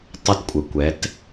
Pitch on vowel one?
high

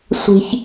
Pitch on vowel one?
low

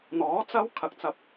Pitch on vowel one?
rising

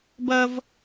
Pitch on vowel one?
high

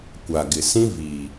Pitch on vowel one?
low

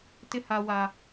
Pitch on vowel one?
low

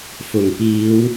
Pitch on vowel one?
low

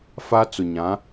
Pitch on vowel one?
high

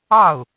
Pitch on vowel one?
falling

